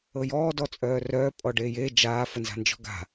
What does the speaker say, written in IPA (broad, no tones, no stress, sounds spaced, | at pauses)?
ɤ j ɔː d ɔ t͡sʼ œː r œː pʼ ɔ ɖ eː j e d͡ʒ aː f ə n z a̤ n d͡ʒ ɔ̤ ɡ a̤